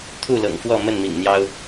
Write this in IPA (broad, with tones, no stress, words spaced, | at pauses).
t̪ʰu˥˨lɤ̰˨˩ŋfwɔ˥˨ mə˥˨nmḭ˨˩ŋn̪jɑ˦ʊ̯